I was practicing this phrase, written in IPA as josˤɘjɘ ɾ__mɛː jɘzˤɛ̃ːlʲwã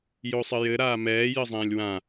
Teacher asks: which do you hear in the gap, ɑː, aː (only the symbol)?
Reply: aː